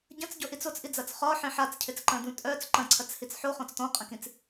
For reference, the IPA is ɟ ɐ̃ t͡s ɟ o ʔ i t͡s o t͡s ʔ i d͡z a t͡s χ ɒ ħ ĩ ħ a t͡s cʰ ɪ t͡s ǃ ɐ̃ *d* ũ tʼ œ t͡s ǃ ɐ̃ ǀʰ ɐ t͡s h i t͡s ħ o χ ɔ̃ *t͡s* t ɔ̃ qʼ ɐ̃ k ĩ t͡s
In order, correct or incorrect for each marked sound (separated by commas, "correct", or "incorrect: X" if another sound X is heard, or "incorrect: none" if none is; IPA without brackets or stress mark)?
correct, correct